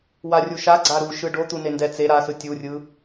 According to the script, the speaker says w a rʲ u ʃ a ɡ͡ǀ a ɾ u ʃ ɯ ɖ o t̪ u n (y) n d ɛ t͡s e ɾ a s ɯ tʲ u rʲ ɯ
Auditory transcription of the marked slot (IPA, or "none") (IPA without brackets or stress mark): e